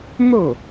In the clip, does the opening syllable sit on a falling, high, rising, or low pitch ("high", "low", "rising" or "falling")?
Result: falling